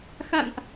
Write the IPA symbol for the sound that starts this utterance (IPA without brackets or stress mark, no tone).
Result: x